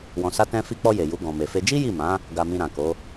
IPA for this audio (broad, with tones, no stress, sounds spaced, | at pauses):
w ɔ̃˧ s a˦ t ɛ̃˦ f i˧ k͡p ɔ˧ j e˨ j u˨˦ ɡ ɔ̃˧ m e˧ f e˦ d͡ʒ i˦ j i˦˨ m ã˨˦ | ɡ a˧ m ĩ˧ ɾ ã˨ k o˨˦